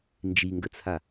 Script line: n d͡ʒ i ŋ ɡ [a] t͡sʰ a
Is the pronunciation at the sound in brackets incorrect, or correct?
incorrect